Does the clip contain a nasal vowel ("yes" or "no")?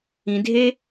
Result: yes